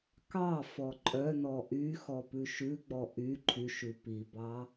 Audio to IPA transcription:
kɑfɔ ǃʼœnɔ ʔy xɔpʉʃʉɡ͡bɔ ʔy ǃʰyʃʉ pibɑ

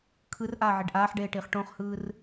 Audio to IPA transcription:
kʰɯrʔaːʕeɖ ʔaːħɖeːʈiːχ ʈõχhɯːr

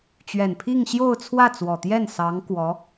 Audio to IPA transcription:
t͡ɕɥɛ˨˩npʰi˥˧ŋɕjo˥˧ʊ̯t͡sʰwä˥˩ t͡swɔ˨˩t̪jɛ˥˩n sɑ˧˥ŋkwɔ˧˥

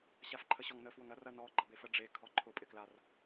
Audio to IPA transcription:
ɕafǃʰəɕɔŋnə fwʊŋɐ rɐnɔ ɡ͡ǃɐbefə ɖ͡ʐe kʰɔǃʰʊ pʼɪklar

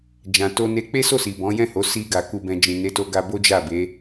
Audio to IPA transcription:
d͡ʒã˧to˦ne˦ k͡pe˦so˦˨si˨ bɔ̃˨˦jɛ̃˦˨ho˨˦ si˧ɡa˨ ku˧bɛ̃˧ d͡ʒĩ˨ne˨˦to˧ ɡa˦ bo˦d͡ʒa˦˨be˨˦

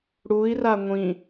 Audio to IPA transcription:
ɽui̯ra ŋʷĩ

